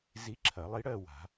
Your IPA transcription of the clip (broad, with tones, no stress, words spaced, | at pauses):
zi˧˥ǁʰɐ˨˩˦lˠi˧˥ɽɜ˥˧ wa̤˨˩˦